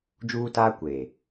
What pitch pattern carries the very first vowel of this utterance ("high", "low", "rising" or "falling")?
high